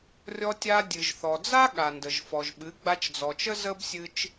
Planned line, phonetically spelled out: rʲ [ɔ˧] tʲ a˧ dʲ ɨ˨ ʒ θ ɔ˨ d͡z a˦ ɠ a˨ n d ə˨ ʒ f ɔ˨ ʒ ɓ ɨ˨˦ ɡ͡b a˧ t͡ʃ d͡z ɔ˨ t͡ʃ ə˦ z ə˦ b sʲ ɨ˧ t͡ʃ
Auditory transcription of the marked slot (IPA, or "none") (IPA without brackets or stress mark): ɔ˧